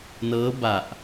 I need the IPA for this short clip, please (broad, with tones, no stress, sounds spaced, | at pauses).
n ɤː˦˥ b a˨˩ ʔ